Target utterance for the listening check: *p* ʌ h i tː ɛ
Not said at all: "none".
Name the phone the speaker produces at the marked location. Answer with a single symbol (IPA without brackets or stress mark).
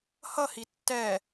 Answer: h